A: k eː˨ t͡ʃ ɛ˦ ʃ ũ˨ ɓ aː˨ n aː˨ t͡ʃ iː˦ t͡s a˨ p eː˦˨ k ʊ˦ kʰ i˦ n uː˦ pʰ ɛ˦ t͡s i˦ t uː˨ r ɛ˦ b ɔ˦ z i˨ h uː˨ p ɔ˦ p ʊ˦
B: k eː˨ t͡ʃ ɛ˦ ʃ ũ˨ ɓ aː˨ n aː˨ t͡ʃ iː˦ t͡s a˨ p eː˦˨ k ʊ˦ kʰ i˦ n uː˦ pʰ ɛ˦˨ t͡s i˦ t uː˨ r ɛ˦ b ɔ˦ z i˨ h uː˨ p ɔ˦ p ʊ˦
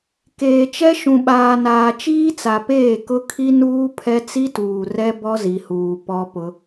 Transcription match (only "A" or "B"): A